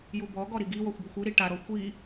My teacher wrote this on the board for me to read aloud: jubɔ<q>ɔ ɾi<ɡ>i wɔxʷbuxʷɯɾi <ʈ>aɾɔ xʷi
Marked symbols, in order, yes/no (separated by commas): no, yes, yes